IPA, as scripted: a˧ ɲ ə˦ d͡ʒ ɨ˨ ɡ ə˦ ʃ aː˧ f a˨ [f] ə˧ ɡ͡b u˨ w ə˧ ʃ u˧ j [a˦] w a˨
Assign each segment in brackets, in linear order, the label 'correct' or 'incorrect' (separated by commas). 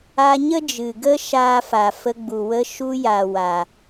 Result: correct, incorrect